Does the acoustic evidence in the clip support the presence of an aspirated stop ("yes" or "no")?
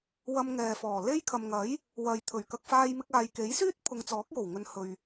yes